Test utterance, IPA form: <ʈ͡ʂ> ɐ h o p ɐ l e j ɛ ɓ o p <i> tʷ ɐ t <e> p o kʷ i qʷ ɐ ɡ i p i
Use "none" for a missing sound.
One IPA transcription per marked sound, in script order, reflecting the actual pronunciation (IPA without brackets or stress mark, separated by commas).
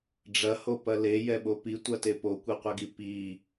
ɖ͡ʐ, i, e